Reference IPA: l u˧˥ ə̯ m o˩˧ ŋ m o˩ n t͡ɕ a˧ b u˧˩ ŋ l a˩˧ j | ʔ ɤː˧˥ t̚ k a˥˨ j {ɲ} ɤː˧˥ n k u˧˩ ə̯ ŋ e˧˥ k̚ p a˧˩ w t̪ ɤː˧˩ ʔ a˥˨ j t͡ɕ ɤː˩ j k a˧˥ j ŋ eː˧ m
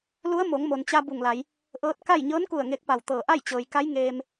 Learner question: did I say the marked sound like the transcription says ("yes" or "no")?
yes